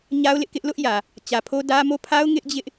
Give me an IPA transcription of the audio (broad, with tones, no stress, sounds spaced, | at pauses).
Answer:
ɲ a˦ ʊ̯ l ɪ˦ ʔ k ɪ˦ ʔ l ʊ˦ ʔ j ä˨ | t͡ɕ ä˨ pʰ o˦ d ä˦ m o˦˨ pʰ a˦ ʊ̯ ŋ ɪ˦ ʔ d͡ʑ ɪ˦ ʔ